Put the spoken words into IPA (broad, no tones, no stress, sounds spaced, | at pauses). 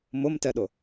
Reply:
m ʊ m t ɛ ɗ ʊ